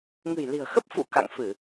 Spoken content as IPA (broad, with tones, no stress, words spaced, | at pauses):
ŋɨ̤˨˩jli̤˨˩ə̯xə˦˥p̚ fṵ˧˨ ka̰˧˨ŋfɨ˧˩˨